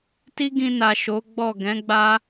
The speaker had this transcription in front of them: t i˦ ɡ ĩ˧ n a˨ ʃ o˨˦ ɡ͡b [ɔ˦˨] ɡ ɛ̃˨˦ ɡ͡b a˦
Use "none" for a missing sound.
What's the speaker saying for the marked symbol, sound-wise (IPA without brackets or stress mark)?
ɔ˦˨